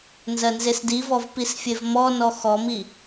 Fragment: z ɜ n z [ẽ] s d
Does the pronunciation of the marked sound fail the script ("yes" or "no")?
yes